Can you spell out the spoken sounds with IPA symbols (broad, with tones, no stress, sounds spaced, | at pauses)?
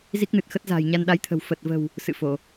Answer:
z i˦˥ k̚ n ɨ˨˩ t̚ x ə˦˥ t̚ z a̤ː˨˩ j ɲ a˧ n ɗ a˨˦ j t̪ʰ ə̤˨˩ w f ə˨˩ t̚ v ə̤˨˩ w | s ɨ̰˧˨ f o˧˩˨